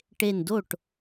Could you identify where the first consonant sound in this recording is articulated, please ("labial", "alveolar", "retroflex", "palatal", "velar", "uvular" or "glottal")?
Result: retroflex